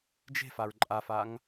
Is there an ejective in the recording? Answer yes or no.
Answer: yes